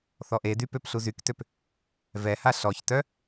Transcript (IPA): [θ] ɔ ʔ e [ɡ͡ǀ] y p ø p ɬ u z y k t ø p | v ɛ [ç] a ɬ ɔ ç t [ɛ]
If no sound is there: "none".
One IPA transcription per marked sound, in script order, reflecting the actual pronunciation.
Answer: θ, d, h, œ

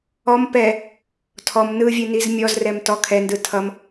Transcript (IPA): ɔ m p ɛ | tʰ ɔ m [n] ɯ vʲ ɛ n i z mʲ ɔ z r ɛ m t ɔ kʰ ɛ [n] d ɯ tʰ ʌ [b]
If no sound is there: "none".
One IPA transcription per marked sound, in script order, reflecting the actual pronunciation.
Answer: n, n, m

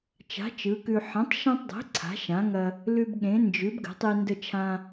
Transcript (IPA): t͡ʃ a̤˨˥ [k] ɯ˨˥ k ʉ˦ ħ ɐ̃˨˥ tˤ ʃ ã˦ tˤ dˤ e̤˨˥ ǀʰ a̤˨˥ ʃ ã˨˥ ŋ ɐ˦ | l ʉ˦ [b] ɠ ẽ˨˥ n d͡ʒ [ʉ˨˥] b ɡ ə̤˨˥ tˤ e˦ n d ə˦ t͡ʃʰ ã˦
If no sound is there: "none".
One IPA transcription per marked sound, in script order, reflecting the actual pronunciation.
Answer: t͡ʃ, b, ʉ˨˥

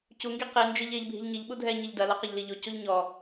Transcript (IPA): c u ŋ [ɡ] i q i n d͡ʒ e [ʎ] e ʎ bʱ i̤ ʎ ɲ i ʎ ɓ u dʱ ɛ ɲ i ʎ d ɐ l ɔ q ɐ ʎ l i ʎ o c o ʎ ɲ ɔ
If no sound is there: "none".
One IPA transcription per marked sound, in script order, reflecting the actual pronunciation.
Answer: ɡ, ʎ

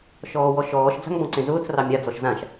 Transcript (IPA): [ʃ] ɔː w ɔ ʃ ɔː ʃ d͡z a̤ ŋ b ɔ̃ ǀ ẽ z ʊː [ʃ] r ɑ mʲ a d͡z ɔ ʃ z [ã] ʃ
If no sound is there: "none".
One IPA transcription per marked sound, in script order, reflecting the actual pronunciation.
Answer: ʃ, t͡s, ã

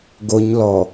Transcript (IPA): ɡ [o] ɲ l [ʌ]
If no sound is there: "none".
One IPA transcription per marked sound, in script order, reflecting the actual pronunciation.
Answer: o, ɔ

